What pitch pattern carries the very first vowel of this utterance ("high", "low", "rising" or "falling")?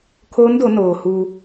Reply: rising